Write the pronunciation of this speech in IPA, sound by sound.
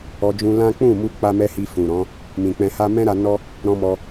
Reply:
ɔ˧d͡ʒũ˧lã˦ k͡pũ˦˨mu˧ k͡pa˦mɛ˦hi˧ fũ˨ɾɔ̃˨˦ | mĩ˨k͡pɛ̃˧ha˦ mɛ̃˦ɾa˧ nɔ˦ | ɾɔ̃˧mɔ˧

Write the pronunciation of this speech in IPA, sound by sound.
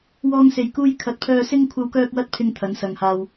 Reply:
wɔː˥ŋse˧jkuː˥j kʰɐ˨˥t̚pʰœː˧ sɪ˥ŋ kʷʰɐ˥wkœː˥k̚wɐ˥t̚ pʰɪ˥ŋt̪ʰɐ˨˥n sɐ˨ŋhaː˧w

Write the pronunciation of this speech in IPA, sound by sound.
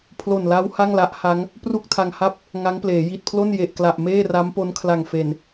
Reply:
pʰlo˨˩nla˦˥w ha˥˩ŋla˦˥ʔ ha˦˥ŋ | pru˥˩k̚tʰa˧ŋha˥˩p̚ | ŋa˦˥ŋpleː˩˦ji˨˩t̚pʰlo˥˩n je˨˩ʔkla˨˩ʔ meː˥˩ra˦˥m po˦˥nkʰla˨˩ŋfe˨˩n

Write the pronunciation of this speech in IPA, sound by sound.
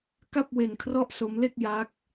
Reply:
ka˥˩p̚we˧n kʰrɔ˥˩ʔso˦˥mle˥˩k̚ ja˦˥k̚

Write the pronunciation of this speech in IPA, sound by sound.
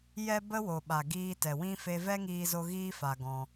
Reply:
jɛ˦bə˦wo˨ ɓa˨ɡiː˧tɛ˨wĩ˦ fe˧vɛ˦ŋiː˧zo˧ ɣiː˦fa˧ɡɔ̃˧

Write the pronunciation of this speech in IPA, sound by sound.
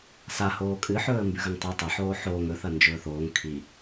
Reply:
sa hoːkʼɨ ħɵːə̯mbʉɣɐŋtˤʉ tˤɐ ħoːħoːŋ ɵ θɐnd͡ʒɵːθoːŋ kʰi

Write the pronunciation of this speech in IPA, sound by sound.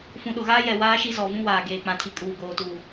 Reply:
fũ˨ɗʊ˨ɣaː˦jɛ˨ waː˦ʃi˦zɔ˨vũ˦ waː˨ɡeː˨k͡pã˨tʰi˨ kʼuː˨ɡoː˨tuː˨

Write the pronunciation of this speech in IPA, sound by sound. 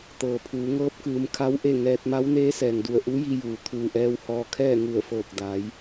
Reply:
t̪ɤː˩pʰuː˩˧ŋɤː˧˥p̚kɯː˩˧m kʰa˧w ʔe˥˨ŋɛː˧t̚ ma˧˥wneː˧˥sɛː˩ŋdu˧˩ə̯ ʔu˧˥ji˧juː˩ t̪ʰuː˧˩ʔɛː˧whɔː˧kʰɛː˥˨ ŋu˧˩ə̯fɤː˧˩k̚da˩˧j

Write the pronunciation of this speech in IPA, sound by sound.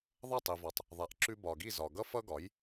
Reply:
ðˤʌ˥˩tˤi˩vɔ˩tˤ | ðˤa˩˥ʔǁʉ˧ bɒ˩ ɡi˥˩zɒ˩ ɡʌ˥fʌ˥ɡɒ˩˥j

